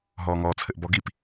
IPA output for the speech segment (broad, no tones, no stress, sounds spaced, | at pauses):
ɦ ɔː ŋ ɔː t͡sʰ ɘ ʔ b ɔ ɡ i p